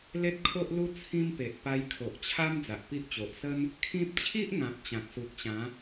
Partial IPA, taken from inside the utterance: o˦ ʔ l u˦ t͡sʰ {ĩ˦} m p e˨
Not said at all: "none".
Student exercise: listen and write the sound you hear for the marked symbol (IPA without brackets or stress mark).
ĩ˦